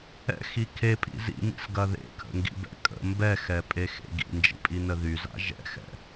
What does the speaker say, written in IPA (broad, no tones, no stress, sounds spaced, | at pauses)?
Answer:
ɛ̰ x i kʰ e pʼ ḭ z ḭ m ḭ s ɡ ɐ ð ḛ kʰ ə̰ ŋ ɡ ḭ b ɛ̰ kʼ ə̰ m b ɛ x ɛ pʼ e x ḛ ɡ ḭ n d͡ʒ ḭ pʼ i n ə ð y z a̰ ʒ ɛ̰ x ɛ̰